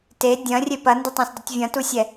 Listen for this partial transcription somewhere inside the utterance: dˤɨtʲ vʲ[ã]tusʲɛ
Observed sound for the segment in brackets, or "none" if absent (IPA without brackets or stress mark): ɐ̃